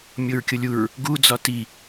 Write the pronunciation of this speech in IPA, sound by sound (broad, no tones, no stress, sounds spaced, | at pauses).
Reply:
mʲ o ɹ kʲ o lʲ u ɹ | ɡ u d͡z ɒ t i